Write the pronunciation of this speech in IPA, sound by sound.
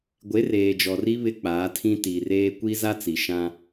ɡʷ e˨˦ r eː˨ d͡ʒ ɔ˨ r i˦ β ɪ˦ k͡p aː˨˦ tʰ ĩ˦ t iː˨ r eː˦ kʷ i˦ z a˦ t͡s i˨ ʃ ã˦

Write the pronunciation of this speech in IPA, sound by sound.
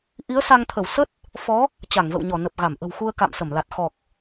ʔ i˨˦ ə̯ s a˧ ŋ t̪ʰ ə˧˩ w s ə˦˥ t̚ | f ɔ˨˦ | t͡ɕ a˧˩ ŋ v ə̰˧˨ w ɲ ɔ˧˩ n ə˨˩ p̚ ɣ a˧˩ m ʔ ə̤˨˩ w x u˧ ə̯ k a̰˧˨ m s ə˧˩ m l a˨˩ t̚ x ɔ˨˩ k̚

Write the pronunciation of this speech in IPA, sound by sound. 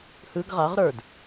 h ɯ ɡ ʁ a ʁ ɾ ə˞ d

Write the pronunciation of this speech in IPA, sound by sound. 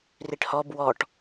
r i ʈ h ɔ b w ɔ ʈ

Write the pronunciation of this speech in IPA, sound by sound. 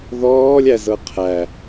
ð ɔː lʲ æ z ɤ qʰ æ

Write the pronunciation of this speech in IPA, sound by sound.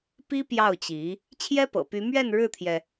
p i˥ p j ɑ˥˩ ʊ̯ t͡ɕ i˧˥ | t͡ɕʰ j ɛ˥ p ɤ̰˨˩ p y˧˥ m ɥ ɛ˥˧ n ɻ ɻ̩˥˩ t̪ʰ j ɛ˩

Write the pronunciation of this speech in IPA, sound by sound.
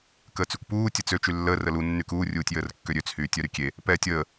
k əː t͡s y kʷ p uː tʲ ə t͡s ø t͡ʃ y lː əː r ə l u nː y k uː rʲ uː tʲ j əː r kː ø ɾʲ ø t͡s h yː tʲ œ ɾ y kʲ e | p ɛː tʲ əː

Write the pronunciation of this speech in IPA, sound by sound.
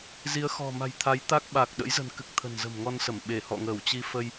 z i˨˦ ə̯ x ɔ̤˨˩ m a̤˨˩ j t̪ʰ a˨˦ j t̪ a˦˥ k̚ ɓ a˨˩ k̚ ɗ ə̰˧˥ j z ə̤˨˩ n k ɨ˨˩ k̚ t̪ʰ ə̤˨˩ n z ə̤˨˩ m ŋ ɔ˧ n s ə˧˩ m ɓ e˧˩ h ɔ̰˧˨ ŋ əː˧˩ w t͡ɕ i˧ f ə˧ j

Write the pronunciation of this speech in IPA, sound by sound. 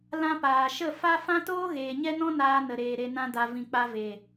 l ã˧ p aː˨ ʃ ə˦˨ f a˦ f ã˦ t oː˦ ɣ eː˨ ɲ ɛ˦ n ɔ̃˦ n aː˧ n ə˨ ɾ eː˨ ɾ e˨ n ã˧ d a˧ v ĩ˨ k͡p a˧ v e˨

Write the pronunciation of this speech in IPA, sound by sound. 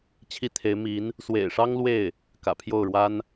t͡ɕʰ i˥ t̪ʰ e˧˥ ɪ̯ m i˧˥ n | s w ḛ˨˩ ɪ̯ ʂ ɑ˥ ŋ l w e˥˩ ɪ̯ | k ä̰˨˩ pʰ j o˥˩ ʊ̯ ɻ w a˥ n

